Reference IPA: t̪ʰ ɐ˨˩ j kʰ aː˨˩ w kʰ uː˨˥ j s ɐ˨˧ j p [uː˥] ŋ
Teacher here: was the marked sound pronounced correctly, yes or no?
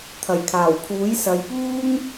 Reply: yes